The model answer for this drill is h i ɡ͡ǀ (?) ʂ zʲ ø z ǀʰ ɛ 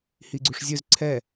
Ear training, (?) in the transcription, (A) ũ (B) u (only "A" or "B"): B